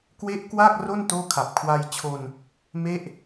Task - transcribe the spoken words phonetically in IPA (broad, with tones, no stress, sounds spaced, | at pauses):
k w e˦˥ ʔ k w a˥˩ k̚ r o˥˩ n t oː˥˩ kʰ a˨˩ p̚ kʰ w a˧ j t͡ɕʰ o˧ n | m e˥˩ ʔ